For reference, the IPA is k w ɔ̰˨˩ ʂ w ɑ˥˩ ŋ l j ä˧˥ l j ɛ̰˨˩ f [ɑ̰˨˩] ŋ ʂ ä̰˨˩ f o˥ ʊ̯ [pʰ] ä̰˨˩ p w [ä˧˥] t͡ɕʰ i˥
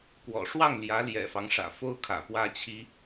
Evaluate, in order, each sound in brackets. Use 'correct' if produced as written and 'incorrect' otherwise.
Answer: incorrect, incorrect, incorrect

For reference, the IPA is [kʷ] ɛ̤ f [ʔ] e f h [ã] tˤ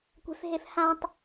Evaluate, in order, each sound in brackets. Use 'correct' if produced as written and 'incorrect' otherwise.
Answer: correct, incorrect, correct

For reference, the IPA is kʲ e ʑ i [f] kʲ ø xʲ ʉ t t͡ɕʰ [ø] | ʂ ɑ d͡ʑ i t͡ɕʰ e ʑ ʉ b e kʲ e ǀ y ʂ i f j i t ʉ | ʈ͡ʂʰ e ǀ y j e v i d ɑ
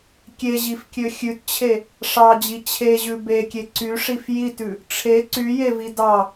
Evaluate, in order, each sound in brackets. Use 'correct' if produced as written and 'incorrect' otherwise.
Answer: correct, incorrect

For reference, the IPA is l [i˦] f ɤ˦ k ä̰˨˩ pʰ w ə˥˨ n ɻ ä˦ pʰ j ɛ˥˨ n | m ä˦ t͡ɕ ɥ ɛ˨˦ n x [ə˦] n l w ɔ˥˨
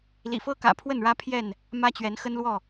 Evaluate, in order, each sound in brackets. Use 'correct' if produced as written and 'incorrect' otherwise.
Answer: incorrect, correct

